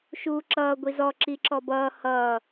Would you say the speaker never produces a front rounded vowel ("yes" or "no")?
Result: yes